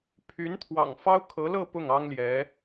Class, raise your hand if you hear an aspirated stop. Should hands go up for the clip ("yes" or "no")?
yes